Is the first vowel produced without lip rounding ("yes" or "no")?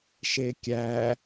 yes